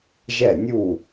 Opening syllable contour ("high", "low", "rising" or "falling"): falling